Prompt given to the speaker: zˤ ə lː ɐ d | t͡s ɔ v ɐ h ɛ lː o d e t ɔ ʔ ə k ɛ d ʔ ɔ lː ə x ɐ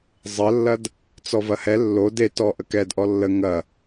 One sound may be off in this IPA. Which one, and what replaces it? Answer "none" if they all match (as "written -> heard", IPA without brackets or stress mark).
x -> ŋ